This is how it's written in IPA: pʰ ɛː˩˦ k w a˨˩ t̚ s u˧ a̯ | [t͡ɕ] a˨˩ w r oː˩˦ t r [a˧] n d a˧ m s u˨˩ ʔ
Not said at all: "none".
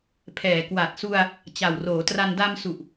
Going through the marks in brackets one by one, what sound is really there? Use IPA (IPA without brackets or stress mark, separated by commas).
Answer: t͡ɕ, a˧